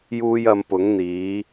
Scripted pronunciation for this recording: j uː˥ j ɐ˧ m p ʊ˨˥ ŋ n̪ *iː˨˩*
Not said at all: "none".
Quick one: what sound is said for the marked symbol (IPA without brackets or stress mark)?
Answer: iː˨˥